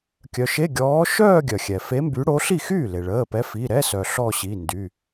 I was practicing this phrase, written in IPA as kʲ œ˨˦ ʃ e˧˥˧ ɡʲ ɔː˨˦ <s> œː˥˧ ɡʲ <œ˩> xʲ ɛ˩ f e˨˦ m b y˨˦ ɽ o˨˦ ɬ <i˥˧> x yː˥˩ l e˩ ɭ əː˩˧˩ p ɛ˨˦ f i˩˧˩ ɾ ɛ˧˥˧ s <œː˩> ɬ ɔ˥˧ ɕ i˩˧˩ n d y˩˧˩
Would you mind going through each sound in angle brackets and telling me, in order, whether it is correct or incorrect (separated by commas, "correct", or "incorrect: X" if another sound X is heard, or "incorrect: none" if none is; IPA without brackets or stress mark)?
incorrect: ʃ, correct, incorrect: i˥˩, incorrect: œ˩